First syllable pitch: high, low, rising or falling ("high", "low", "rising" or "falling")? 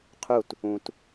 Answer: falling